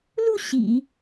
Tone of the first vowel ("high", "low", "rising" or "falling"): falling